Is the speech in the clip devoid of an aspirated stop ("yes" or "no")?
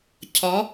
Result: no